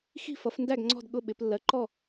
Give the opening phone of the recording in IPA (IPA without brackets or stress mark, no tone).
x